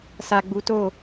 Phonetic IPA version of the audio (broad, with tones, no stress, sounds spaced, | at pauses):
s a˨ ɡ͡b u˨˦ t o˦˨